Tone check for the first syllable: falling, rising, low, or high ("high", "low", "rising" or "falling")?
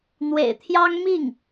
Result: low